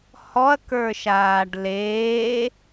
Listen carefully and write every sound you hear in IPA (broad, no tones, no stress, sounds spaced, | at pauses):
h ɔ ɐ̯ k ə˞ ʃ aː ɖ l eː